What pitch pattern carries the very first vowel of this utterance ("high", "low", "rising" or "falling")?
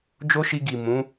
high